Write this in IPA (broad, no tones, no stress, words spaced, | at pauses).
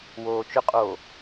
woːt͡ʃʊqʼoː